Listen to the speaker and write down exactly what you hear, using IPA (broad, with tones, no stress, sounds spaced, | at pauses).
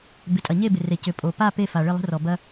b ɪ˩ tʼ ɐ˩ ɲ e˦˨ b ɪ˩ r e˩ c ʏ˩ pʼ o˩ p a˦˨ p e˦˨ f a˩ ɭ ɪ˦˨ lˠ ə̤˦ r ɔ˩ b ɐ˦